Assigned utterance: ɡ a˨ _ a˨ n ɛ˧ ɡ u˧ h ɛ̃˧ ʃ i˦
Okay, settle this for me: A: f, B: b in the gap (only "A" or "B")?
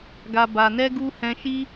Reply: B